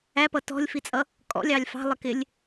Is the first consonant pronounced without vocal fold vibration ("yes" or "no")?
yes